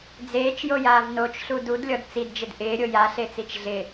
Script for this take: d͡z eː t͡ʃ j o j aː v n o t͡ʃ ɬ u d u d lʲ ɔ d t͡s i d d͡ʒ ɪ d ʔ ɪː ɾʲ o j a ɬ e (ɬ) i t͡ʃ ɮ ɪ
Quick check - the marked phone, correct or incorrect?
incorrect: t͡s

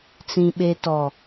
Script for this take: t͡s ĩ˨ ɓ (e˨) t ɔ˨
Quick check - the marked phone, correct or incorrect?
correct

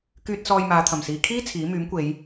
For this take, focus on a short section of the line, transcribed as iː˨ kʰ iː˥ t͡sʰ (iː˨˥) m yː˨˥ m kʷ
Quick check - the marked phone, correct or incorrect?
correct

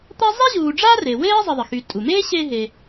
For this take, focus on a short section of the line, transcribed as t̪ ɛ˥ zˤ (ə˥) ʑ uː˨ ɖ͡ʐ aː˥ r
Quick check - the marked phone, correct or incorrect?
incorrect: ɛ˥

